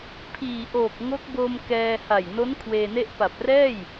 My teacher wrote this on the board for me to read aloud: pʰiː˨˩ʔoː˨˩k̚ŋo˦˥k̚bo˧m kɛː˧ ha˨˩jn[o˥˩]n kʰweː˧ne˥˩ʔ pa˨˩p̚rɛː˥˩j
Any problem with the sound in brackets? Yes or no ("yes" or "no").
yes